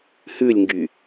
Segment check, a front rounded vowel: present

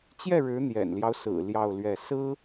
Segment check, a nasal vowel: absent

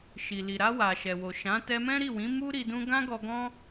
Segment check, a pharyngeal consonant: absent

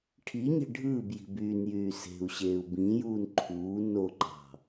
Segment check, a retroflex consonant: present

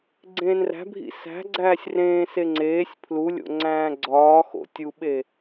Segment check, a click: present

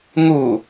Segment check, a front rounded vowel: absent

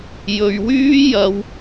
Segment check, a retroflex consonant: absent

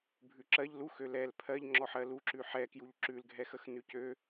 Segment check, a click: present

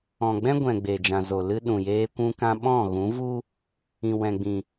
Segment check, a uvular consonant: absent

